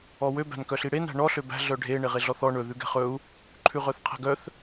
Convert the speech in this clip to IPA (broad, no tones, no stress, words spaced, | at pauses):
ɔwø bæ̤nkœɬiɽen æ̤ɳɔ ɬøbæ̤ ɮœɖʱe ɳeʁeɮɔθɔ ɳɵ ðʉɡɛ̤χɵu̯ | ǃʰʉʁœθqʰæ̤ɡœθ